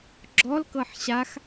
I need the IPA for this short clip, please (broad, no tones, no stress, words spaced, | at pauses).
ɡ͡ǁɔlkɤħ ɕax